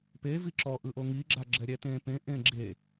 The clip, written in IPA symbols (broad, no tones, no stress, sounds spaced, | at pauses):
p e v i ǁ ɔ ʔ ɯ ʔ o ŋ i ɡ͡ǁ a ɡ͡ǁ ɛ ɾʲ ɛ t ẽ p ẽ ʔ ẽ ɡ͡ǁ e